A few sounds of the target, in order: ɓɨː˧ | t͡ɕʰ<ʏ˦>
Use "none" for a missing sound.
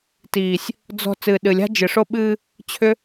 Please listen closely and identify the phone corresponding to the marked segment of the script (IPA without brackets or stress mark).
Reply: ʏ˦